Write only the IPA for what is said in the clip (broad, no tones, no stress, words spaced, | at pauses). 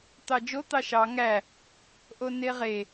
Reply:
t̪ɑd͡ʒo t̪ɑʃɑ ŋæ | ʔoneʁe